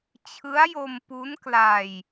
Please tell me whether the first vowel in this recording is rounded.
no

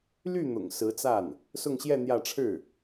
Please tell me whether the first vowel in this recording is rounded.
yes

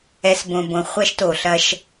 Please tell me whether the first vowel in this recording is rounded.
no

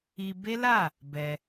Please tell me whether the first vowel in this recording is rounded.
no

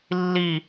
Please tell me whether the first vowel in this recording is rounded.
no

